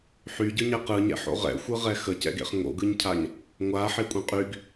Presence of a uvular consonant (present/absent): present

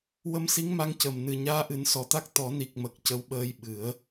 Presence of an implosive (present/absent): present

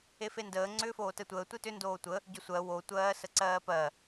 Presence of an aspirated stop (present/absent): absent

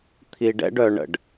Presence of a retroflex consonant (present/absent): present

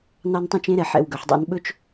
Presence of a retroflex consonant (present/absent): absent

